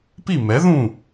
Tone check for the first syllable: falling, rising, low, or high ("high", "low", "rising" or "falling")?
falling